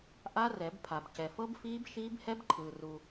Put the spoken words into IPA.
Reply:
ʔ a˦˥ r ɛ˨˩˦ b pʰ a˨ b c ɛ˨ f ɤ˦˥ b f iː˦˥ b ʃ iː˦˥ b h ɛ˦˥ b ǃʰ ɯː˨ r u˨

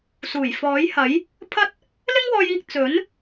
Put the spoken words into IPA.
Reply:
s uː˨˩ j f ɔː˨˥ j h ɐ˨˥ j | pʰ ɐ˥ t̚ | l ɪ˥ ŋ w ɔː˧ j iː˧ k̚ t͡s ɵ˨˥ n

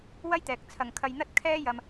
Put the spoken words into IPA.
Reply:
w ɐ˥ j t̪ ɛː˨ k̚ t͡sʰ ɐ˨ ŋ kʰ ɐ˧ j n̪ ɐ˥ t̚ kʰ ɛː˥ j ɐ˨ m

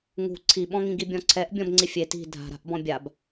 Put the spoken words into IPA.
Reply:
ŋ ṳ ǀʰ i ɓ ɔ̃ ŋ ĩ ɡ i bʲ ɔ̃ ǀʰ ɛ ʔ bʲ ɔ̃ b ŋ͡ǀ i fʲ e t i̤ dʱ a̤ ɾ a̤ ʔ b ɔ̃ bʲ a b

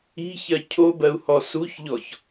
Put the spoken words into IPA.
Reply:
i̤ ç ɜ cʰ o b ɜ u̯ h ɔ s u ç ʎ ɔ ç

